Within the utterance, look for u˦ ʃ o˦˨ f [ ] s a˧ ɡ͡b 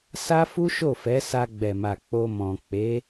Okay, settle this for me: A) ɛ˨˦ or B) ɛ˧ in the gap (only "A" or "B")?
A